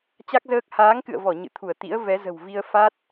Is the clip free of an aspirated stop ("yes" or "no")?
no